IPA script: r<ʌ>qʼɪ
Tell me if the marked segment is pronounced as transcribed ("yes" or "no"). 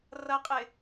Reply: yes